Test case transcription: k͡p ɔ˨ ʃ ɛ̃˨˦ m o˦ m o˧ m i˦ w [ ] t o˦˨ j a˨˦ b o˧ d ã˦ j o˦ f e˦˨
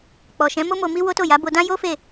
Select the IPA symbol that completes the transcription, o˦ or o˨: o˦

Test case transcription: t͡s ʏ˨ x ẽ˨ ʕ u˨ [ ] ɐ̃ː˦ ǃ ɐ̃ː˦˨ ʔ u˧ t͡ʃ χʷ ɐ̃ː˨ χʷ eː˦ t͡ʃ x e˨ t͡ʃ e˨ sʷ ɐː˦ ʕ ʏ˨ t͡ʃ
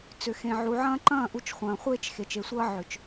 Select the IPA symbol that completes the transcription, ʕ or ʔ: ʕ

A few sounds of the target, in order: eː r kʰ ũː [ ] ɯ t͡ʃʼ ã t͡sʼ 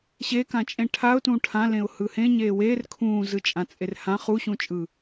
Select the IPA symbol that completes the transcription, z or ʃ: z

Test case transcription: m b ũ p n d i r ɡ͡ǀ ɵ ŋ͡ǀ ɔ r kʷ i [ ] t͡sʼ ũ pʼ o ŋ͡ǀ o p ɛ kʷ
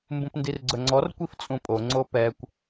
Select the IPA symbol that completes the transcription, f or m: f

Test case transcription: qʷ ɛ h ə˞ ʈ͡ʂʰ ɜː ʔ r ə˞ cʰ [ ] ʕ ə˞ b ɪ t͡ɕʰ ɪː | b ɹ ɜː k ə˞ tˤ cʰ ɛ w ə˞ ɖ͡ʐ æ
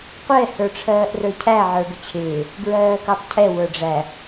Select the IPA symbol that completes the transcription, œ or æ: æ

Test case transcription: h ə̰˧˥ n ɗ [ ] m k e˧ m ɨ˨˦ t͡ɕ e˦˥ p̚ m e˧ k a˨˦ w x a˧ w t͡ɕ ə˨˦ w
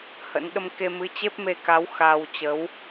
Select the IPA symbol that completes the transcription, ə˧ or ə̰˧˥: ə˧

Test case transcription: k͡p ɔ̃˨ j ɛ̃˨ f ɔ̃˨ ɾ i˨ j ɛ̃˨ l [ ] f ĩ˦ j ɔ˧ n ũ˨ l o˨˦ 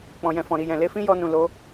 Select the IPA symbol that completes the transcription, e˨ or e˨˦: e˨˦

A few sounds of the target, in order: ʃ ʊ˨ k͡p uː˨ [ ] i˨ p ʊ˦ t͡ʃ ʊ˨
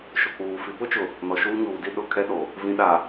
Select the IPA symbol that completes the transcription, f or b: f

